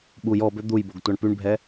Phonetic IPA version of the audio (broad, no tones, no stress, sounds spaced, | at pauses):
ɓ u j ɔ b ø d̪ u j b o ɡ tʷ a ɳ p y ɳ bʱ ɛ